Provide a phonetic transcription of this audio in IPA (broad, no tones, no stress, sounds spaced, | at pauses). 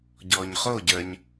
ɟ ɔː ɲ χ o ɟ ə˞ ɲ